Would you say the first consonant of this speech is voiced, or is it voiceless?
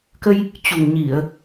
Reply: voiceless